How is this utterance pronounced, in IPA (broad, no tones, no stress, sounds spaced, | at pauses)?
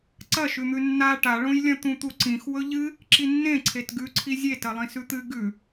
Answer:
ǀ ɐ ʃ ʉ n̪ ʉ nː a ʈ a ɭ õ j lʲ ɐ̃ t̪ ũ t̪ u ǀ ĩ x w ɵ ʎ ɨ | ǁ i nː ẽ ǀʰ e t ɡ ʉ ǀʰ i zʲ e t ɐ lˠ ĩ s ʉ t̪ ɨ ɡ ʉ